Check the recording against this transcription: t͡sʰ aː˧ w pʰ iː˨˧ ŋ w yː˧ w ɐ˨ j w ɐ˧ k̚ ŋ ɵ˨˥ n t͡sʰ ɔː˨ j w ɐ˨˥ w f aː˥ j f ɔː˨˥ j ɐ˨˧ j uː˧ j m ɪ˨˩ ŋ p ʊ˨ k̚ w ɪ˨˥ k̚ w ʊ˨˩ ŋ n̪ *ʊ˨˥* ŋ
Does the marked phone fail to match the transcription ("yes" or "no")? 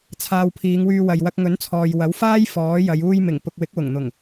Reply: yes